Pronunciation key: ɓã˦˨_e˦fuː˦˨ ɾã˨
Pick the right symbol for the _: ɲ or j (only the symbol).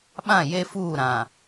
j